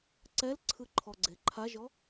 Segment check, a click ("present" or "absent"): present